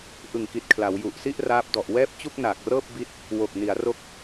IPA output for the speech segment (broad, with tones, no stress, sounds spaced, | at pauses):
ʔ ɯ˨˩ ŋ k i˨˩ t̚ kʰ l a˩˦ w j u˨˩ ʔ s i˥˩ ʔ r aː˦˥ p̚ d ɔ˨˩ ʔ w ɛː˥˩ p̚ t͡ɕ u˥˩ k̚ n aː˨˩ k̚ r ɤː˥˩ p̚ b i˦˥ t̚ | w o˨˩ k̚ n i˩˦ a̯ r o˦˥ k̚